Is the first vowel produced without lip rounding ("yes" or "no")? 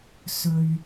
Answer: no